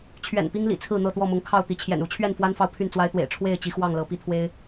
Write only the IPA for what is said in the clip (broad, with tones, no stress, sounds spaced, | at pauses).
t͡ɕʰ ɥ ɛ̰˨˩ n p i˦ ŋ l ḭ˨˩ t͡sʰ ɹ̩˥˨ n̪ ɤ˥˨ t̪ w ɔ˥˨ m ʊ˨˦ ŋ kʰ ɑ˥˨ ʊ̯ t̪ i˨˦ t͡ɕʰ j ɛ̰˨˩ n u˨˦ t͡ɕʰ ɥ ɛ˥˨ n f w a˦ n f ɑ˨ ʊ̯ pʰ y˥˨ n t͡s w a˦ ɪ̯ t̪ w ḛ˨˩ ɪ̯ ʈ͡ʂʰ w e˥˨ ɪ̯ t͡ɕ i˨˦ x w ɑ˥˨ ŋ l ɤ˨˦ p i˨˦ t̪ʰ w e˦ ɪ̯